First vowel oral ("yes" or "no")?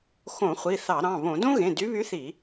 no